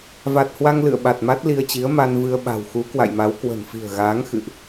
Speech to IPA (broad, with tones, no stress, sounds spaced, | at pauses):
v a˨˩ t̚ h w a˧ ŋ l ɨ̰˧˨ ə̯ ɓ a˨˩ t̚ m a˦˥ t̚ l i˧ ə̯ t͡ɕ i˨˦ ə̯ m a˧ n v ɨ˧ ə̯ ɓ a̤˨˩ w x u˨˦ k w a̰˧˨ j m a˨˦ w k w ə̤˨˩ n f i̤˨˩ ə̯ ɣ aː˨˦ ŋ x ɨ̰˧˨ ʔ